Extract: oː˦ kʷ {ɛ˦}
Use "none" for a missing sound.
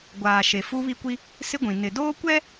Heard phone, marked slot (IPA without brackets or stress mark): ɛ˦